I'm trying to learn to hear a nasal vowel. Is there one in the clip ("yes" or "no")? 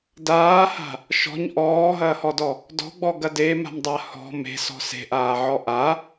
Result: no